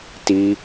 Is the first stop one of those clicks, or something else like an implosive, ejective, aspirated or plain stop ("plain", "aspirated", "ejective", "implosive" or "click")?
plain